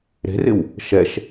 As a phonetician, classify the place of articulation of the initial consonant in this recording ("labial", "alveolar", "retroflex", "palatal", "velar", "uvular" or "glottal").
alveolar